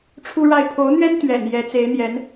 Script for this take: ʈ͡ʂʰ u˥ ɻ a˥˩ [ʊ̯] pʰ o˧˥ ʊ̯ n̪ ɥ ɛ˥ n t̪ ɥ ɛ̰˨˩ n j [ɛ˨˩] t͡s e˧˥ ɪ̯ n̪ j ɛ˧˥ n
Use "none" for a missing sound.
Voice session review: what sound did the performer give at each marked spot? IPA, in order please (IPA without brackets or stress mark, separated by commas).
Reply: ɪ̯, ɛ˧˥